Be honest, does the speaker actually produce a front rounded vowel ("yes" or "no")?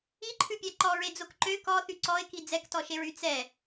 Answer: yes